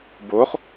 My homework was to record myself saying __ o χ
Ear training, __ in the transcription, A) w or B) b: B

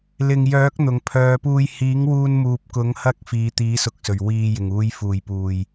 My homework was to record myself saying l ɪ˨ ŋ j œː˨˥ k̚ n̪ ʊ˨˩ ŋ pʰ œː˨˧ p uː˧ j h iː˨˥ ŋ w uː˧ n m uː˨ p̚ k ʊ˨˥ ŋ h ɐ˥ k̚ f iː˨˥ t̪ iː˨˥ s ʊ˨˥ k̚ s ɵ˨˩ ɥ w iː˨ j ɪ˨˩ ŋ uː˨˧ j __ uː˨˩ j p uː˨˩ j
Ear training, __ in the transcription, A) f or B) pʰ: A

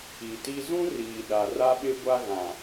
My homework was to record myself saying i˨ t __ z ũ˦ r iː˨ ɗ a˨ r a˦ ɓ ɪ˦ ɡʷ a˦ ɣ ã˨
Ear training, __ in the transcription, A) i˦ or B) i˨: A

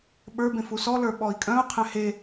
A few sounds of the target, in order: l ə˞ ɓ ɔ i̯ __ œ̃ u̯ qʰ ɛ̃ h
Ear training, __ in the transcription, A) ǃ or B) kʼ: B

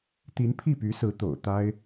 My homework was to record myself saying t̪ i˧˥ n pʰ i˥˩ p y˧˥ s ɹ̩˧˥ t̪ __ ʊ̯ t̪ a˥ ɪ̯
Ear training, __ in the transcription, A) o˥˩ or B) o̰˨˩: B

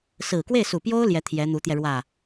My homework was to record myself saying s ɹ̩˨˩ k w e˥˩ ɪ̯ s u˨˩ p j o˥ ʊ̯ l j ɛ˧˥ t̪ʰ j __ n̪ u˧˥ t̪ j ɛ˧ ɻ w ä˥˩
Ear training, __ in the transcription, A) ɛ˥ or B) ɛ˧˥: B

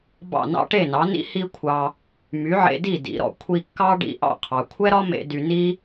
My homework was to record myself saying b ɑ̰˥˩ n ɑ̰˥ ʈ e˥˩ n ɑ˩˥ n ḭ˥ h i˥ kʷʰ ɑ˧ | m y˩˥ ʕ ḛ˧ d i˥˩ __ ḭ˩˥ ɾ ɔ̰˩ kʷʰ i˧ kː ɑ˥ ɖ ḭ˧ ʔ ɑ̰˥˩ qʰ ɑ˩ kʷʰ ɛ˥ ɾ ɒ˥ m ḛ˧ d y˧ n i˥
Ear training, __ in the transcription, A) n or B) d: B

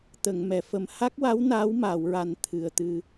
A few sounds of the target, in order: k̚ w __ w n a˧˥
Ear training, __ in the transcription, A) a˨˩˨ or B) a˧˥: B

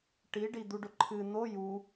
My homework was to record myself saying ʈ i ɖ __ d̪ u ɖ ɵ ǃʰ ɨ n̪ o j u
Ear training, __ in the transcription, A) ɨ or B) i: B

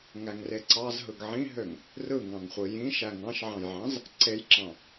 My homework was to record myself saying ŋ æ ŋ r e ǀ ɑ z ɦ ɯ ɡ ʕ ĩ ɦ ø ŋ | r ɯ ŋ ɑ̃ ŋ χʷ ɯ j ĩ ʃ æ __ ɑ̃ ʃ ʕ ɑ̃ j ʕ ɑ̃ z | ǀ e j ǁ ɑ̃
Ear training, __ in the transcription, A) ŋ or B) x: A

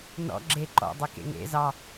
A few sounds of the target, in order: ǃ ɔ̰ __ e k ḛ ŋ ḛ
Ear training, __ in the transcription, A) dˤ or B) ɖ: A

